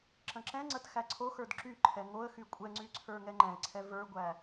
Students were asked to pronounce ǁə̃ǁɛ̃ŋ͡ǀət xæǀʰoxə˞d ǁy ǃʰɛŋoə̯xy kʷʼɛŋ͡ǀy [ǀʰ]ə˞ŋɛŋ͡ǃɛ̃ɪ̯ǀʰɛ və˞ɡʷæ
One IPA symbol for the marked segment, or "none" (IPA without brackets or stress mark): ǀʰ